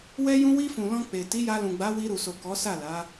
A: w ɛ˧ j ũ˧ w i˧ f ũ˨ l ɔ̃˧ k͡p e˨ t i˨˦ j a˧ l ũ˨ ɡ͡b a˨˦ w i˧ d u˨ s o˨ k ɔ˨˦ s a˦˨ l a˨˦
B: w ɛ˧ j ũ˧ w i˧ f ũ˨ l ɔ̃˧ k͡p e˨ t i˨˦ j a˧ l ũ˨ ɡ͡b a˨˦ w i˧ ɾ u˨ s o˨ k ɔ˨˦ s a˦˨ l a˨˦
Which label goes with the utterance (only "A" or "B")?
B